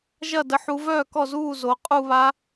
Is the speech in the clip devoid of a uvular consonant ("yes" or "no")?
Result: no